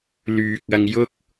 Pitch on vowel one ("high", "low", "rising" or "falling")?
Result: low